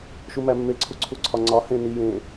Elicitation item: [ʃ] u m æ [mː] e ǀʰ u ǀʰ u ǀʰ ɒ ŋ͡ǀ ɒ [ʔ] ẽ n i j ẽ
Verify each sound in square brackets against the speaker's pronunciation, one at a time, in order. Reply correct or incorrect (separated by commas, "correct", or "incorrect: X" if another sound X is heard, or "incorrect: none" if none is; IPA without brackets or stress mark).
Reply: correct, correct, incorrect: h